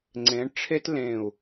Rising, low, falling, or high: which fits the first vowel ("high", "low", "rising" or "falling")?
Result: rising